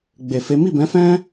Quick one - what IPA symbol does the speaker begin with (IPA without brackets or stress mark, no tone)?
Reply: ɡ͡b